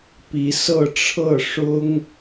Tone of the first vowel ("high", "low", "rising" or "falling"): rising